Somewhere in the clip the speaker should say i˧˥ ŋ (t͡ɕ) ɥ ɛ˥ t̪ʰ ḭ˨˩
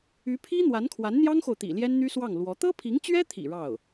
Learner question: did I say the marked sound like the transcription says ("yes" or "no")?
yes